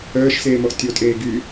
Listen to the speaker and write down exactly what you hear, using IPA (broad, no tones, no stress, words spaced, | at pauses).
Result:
œːʃseːmɔʔ tʲotʼeː ɡy